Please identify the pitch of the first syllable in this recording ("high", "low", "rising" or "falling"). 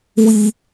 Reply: high